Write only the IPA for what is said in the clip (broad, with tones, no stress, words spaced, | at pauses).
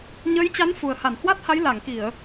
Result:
ɲəː˨˦jt͡ɕa˨˦n fu˨˩ə̯ha˧˩nhwa˦˥t̚ha˨˦j la˧˩ŋki˧˩˨ə̯